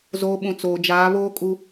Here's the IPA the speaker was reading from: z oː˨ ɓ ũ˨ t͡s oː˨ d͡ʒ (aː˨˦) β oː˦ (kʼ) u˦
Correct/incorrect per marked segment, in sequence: correct, correct

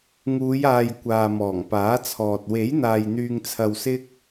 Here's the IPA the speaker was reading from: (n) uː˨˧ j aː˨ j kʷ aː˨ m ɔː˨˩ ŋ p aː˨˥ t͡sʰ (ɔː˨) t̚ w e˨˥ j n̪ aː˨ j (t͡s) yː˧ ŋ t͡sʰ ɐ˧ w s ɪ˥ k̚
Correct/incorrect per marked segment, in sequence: incorrect, correct, incorrect

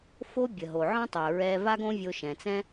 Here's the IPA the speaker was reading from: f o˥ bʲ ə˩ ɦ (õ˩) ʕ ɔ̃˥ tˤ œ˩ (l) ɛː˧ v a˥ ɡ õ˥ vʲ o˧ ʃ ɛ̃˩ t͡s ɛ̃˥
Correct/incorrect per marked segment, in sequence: incorrect, incorrect

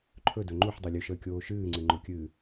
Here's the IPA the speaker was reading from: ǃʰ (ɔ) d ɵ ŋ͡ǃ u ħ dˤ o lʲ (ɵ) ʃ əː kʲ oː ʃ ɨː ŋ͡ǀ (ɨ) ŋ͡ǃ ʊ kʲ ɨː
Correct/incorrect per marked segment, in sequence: incorrect, correct, correct

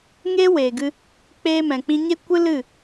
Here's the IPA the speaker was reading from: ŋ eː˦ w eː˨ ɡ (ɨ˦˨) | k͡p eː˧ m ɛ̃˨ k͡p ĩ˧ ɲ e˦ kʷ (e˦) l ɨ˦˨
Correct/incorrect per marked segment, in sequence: incorrect, incorrect

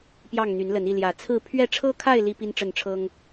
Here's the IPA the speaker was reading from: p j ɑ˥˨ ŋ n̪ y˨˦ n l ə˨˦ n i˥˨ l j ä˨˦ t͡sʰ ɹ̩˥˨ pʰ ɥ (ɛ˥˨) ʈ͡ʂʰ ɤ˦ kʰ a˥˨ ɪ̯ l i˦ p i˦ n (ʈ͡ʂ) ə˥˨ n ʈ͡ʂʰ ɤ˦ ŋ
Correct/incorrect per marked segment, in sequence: correct, correct

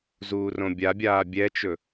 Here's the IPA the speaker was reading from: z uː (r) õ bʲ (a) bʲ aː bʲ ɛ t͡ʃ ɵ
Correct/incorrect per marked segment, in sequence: correct, correct

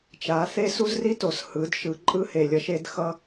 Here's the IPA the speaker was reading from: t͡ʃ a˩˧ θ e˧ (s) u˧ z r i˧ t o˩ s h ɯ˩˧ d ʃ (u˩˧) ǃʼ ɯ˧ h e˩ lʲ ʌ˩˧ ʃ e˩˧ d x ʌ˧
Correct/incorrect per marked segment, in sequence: correct, incorrect

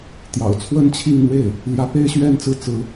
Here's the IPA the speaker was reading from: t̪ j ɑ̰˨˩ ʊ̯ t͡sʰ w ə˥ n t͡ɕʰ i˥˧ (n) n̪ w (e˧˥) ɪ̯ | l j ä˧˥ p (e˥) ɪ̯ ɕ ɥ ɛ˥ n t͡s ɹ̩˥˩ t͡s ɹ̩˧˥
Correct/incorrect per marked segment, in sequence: incorrect, incorrect, correct

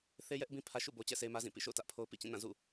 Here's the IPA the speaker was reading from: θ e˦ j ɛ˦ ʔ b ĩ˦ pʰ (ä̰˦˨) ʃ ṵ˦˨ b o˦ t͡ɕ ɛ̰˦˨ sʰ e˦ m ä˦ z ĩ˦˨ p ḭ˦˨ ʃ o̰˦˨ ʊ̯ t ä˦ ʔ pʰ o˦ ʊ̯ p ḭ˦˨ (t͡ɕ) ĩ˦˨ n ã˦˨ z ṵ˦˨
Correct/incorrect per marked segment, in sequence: incorrect, correct

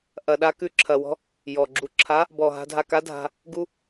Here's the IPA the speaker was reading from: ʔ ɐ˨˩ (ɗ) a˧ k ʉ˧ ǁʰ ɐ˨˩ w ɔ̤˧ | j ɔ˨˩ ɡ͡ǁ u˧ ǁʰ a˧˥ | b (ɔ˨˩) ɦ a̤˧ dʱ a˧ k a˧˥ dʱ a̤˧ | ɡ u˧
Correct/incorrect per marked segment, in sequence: correct, correct

